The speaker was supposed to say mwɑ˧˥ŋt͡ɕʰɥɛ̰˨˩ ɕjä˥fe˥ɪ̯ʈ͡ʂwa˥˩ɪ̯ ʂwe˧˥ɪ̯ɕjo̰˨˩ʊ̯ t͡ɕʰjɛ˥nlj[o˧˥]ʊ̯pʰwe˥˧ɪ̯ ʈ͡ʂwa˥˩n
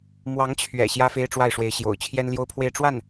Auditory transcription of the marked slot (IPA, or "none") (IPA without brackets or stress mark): o˥